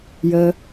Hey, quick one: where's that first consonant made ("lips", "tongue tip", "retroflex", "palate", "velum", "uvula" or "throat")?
palate